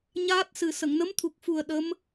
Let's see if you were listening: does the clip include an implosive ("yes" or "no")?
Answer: yes